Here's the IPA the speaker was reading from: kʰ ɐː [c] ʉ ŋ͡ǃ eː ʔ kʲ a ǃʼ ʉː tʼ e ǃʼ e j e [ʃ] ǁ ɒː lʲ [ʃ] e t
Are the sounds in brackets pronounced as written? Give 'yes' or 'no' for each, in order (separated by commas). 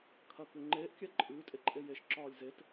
no, yes, no